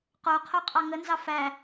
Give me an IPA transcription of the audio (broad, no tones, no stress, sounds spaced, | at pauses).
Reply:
q o qʰ o qʼ ɑ ŋ ə n z ɑ f æ